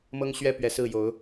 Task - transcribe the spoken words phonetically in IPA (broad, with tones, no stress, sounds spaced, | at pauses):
m ɤ˦ ŋ ɕ ɥ ɛ˦ p ɥ ɛ˨˩ s ɹ̩˥˨ j o˨˦ ʊ̯